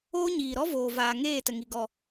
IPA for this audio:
oː˦ ɲiː˨ɾɔ˦voː˨vaː˨ ŋeː˦˨tə˨ŋi˨ ɡɔ˨

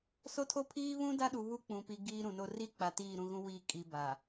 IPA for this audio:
so˦tʰo˦pʰiː˦ βũ˦ da˦ɗu˨ βu˦k͡pũ˨pi˨ ɡiː˦ɾũ˨no˦ ri˦ k͡pa˨tiː˦˨ɾũ˦˨ɣũ˦ wi˦˨ kʼi˨ ba˨

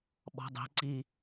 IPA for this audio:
ɓɔ̤dˤi̤ ǀi

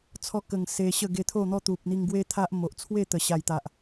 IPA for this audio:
t͡sʰɔ˧kə˨˩ŋ se˧ɕə˥˧ ɡe˧t̪ʰo˥˧n̪ɔ˦ t̪u˨p̚n̪i˧ŋɡwe˦ t̪ʰa˦ʔmo˨ʔ t͡sʰwe˥˧t̪ə˨˩ ɕa˨˩jt̪a˨ʔ

